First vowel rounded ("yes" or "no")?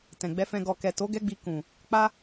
no